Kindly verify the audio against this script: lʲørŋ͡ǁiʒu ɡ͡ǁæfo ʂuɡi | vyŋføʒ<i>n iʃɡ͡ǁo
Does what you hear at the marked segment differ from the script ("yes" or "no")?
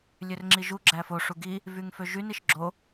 yes